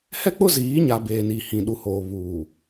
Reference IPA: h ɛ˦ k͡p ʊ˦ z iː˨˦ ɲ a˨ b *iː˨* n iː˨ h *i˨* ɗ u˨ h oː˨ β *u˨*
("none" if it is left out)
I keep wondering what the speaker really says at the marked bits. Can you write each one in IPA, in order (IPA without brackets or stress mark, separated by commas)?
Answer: eː˨, ĩ˨, uː˨